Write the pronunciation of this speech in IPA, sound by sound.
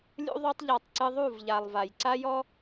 lʲ ṵ˧ ðˤ o˧ tˤ ʎ a˨ tˤ ǀ ɨ˧ ðˤ u˦˨ v ʎ a˨ lˠ v a˨ j ǀ a˦ j ɔ˦

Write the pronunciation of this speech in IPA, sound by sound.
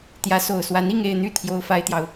t̪ j ä˧˥ s o˨˩ ʊ̯ s w a˧˥ n i˥˧ ŋ e˥˧ ɪ̯ n̪ y˥˩ t̪ʰ j o˥ ʊ̯ f a˥ ɪ̯ t̪ j ɑ˨ ʊ̯

